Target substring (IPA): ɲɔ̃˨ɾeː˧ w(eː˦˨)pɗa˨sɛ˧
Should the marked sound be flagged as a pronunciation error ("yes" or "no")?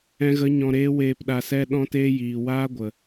yes